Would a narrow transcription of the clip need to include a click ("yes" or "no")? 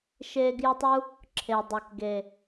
yes